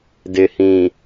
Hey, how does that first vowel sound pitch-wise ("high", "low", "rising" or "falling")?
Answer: low